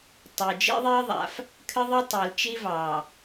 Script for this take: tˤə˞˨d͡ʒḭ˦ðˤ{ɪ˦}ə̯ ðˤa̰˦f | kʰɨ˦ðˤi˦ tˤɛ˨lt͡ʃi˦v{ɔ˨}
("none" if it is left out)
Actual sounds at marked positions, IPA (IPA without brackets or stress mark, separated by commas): i˦, ɑ˨